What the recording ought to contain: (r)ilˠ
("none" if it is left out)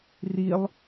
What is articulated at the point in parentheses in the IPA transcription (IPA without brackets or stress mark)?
r